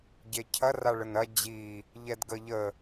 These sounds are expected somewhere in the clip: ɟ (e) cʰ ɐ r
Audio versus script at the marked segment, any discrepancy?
no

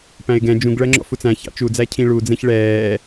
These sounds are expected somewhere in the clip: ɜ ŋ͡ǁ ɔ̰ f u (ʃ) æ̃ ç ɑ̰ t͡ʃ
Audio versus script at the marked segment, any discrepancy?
yes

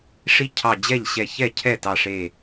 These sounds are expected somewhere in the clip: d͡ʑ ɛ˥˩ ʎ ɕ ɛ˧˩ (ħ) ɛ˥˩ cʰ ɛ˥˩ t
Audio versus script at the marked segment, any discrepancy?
yes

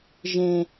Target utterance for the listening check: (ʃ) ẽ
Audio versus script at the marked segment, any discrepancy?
yes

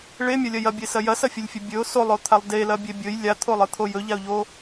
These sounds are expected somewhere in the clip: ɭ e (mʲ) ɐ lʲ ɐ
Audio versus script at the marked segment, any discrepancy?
no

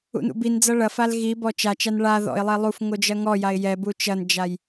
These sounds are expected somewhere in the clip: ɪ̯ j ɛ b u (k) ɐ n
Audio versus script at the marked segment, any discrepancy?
yes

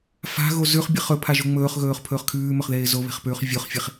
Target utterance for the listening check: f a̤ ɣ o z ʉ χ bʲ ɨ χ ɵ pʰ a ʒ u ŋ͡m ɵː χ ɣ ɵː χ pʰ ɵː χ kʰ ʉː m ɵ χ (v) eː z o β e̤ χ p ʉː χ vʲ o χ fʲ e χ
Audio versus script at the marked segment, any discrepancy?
yes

